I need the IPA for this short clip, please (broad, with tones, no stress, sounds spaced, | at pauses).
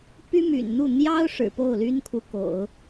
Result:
p y˥ m y̰˨˩ n n̪ u˥˩ n̪ j ɑ˥ ʊ̯ ʂ ɻ̩˨˩ p o˥˩ ʊ̯ l y˥ n kʰ u˧˥ k o̰˨˩˦ ʊ̯